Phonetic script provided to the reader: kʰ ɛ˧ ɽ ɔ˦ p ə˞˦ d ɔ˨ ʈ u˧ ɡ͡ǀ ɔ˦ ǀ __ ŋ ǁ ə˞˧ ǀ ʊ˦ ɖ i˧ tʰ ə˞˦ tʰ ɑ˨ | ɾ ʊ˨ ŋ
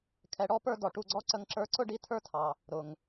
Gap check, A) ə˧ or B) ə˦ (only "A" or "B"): A